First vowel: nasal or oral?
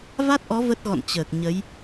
oral